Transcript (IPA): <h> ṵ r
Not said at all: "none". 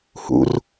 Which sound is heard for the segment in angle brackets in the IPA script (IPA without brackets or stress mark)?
h